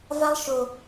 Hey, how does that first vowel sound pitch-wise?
high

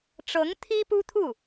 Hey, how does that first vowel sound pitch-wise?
rising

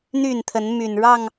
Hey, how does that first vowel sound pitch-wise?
falling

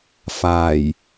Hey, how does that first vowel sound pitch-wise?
low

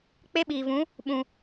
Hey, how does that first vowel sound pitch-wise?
high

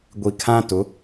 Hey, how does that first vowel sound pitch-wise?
low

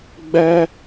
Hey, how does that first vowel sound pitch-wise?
high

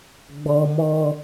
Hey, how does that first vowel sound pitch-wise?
high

